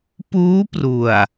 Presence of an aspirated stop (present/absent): absent